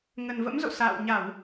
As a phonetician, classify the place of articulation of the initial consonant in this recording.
velar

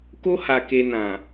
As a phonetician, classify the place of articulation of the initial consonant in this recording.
velar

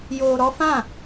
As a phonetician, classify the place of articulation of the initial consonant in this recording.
palatal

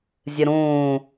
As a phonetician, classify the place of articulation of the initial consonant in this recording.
alveolar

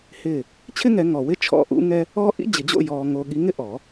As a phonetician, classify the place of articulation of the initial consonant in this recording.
glottal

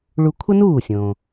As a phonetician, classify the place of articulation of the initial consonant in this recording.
retroflex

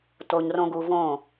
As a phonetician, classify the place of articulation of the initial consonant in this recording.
alveolar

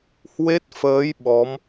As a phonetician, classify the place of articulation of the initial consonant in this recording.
glottal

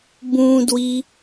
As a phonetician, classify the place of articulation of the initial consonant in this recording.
labial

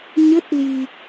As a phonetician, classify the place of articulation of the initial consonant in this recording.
palatal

